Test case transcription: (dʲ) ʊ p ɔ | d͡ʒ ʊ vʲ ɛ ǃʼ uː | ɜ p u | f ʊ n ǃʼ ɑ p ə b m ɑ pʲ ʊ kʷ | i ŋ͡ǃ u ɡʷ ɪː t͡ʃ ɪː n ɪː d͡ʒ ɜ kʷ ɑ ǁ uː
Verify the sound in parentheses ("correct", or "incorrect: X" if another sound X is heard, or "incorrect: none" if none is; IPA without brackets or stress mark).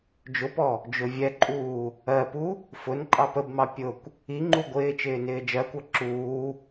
incorrect: d͡ʒ